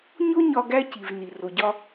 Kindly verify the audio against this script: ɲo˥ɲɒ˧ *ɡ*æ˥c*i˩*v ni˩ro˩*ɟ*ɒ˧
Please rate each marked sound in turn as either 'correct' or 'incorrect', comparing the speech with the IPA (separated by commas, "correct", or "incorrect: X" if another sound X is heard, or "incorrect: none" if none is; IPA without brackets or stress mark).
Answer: correct, correct, correct